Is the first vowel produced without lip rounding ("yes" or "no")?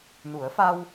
no